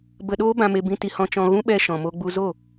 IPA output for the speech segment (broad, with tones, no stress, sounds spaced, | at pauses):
b ə˧ ɗ oː˦ b ã˧ m e˧ b ĩ˧ t i˧ h ɔ̃˧ t͡ʃ ɔ̃˧ ɣ ũ˦ ɓ ɛ˧ ʃ ɔ̃˨ m o˧ ɡ͡b u˧ z o˦˨